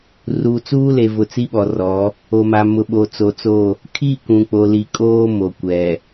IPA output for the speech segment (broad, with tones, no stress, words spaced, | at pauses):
ruː˨t͡suː˦le˨vʊ˨ t͡si˦ɓɔ˨rɔ˨˦ | o˨ma˨ mʊ˨ɓo˨t͡so˨t͡so˦˨ | kʰi˦˨ kũ˨k͡po˨ li˨kʼoː˦ mo˨kʷɛ˨